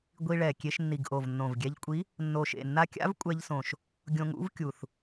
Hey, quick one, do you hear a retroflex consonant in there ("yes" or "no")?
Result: yes